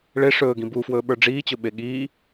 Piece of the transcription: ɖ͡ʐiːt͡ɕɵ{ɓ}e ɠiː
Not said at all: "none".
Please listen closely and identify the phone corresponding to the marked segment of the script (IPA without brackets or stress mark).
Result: ɓ